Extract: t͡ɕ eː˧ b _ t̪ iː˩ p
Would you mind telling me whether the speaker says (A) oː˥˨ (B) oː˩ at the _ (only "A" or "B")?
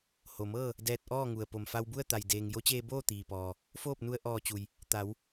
A